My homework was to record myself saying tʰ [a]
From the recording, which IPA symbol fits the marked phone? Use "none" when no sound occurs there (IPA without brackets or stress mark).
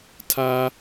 a